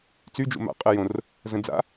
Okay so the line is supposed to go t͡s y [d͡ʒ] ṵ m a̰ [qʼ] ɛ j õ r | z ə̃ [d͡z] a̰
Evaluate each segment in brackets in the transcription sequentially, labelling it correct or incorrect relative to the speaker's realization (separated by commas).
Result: correct, correct, correct